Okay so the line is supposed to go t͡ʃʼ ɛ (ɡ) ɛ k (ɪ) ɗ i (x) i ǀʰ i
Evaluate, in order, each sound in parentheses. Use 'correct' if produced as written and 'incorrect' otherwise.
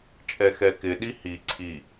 incorrect: x, correct, incorrect: h

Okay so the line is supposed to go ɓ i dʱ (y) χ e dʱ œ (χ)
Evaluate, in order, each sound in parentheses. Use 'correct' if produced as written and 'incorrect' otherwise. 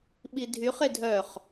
correct, correct

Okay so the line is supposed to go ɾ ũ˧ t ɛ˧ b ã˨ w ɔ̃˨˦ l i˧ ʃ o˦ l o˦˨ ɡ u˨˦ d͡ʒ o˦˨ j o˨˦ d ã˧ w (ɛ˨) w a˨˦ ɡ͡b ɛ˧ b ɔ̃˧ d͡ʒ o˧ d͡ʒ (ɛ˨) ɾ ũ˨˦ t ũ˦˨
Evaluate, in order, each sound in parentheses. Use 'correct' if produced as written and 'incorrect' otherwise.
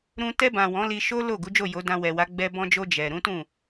correct, correct

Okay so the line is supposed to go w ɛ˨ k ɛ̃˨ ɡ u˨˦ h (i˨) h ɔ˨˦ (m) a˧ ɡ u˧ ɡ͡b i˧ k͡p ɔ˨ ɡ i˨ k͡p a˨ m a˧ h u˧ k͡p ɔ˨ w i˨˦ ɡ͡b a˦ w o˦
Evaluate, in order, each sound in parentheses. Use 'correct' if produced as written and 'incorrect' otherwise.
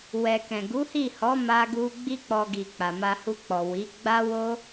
incorrect: i˦˨, correct

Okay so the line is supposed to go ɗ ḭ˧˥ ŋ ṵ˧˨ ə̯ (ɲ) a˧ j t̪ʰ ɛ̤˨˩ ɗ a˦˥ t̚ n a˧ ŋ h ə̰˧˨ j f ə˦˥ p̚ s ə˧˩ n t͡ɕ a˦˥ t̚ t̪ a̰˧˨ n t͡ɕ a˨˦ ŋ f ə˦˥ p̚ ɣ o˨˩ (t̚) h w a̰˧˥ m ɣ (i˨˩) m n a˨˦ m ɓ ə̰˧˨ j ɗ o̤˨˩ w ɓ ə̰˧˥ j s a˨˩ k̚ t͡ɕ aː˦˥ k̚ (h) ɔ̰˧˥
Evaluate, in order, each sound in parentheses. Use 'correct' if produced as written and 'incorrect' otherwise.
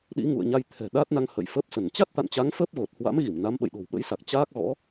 correct, correct, incorrect: i˧˩, incorrect: ɣ

